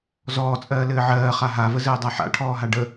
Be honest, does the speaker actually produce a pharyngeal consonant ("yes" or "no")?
yes